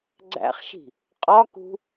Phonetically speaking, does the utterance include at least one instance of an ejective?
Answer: yes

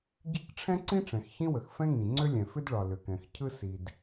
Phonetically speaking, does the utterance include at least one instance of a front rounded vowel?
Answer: yes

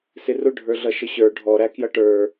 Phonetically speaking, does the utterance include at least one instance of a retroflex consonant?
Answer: yes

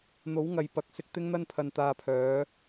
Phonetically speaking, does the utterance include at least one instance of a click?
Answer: no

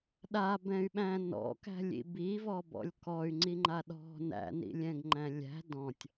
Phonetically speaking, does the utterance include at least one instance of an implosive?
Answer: yes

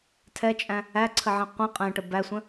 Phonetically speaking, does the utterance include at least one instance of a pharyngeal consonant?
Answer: yes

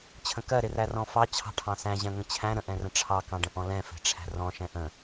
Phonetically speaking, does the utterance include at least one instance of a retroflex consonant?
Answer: yes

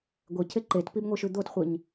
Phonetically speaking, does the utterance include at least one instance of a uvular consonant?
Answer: yes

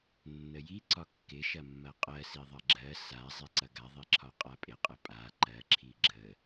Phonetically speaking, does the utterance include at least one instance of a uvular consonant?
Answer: yes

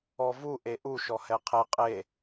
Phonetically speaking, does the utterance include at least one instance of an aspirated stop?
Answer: yes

